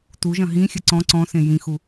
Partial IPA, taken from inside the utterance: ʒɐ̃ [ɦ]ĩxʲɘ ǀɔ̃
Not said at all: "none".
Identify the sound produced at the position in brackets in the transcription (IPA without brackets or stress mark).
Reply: ɦ